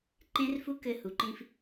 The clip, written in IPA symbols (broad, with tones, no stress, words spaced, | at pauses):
ǃẽ˦rfu˦ kɘ˧hu˨ǃĩ˧f